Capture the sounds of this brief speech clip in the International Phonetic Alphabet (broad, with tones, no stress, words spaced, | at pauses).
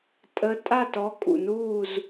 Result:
tʼə˨˥ tʼa˥˨tɔ˨˥kʼṵ˩nuː˥˨z